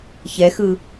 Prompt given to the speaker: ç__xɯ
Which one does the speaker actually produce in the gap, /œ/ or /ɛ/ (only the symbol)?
ɛ